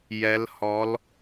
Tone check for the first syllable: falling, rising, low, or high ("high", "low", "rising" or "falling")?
rising